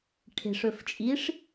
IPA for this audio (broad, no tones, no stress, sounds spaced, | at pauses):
ʈʰ e̤ ʂ ɵ f t͡ʃʼ i ʂ